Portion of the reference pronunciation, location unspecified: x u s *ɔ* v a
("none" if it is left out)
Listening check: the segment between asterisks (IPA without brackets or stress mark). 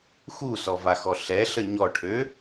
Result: ɔ